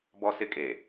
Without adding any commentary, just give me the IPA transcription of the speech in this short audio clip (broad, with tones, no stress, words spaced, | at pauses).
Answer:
bɔ˦sɪ˦kʼe˨